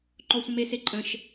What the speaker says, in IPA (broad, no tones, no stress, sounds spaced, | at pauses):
ǃ ɔ sʷ ə̃ m e s e ǃʼ ə̃ ʃ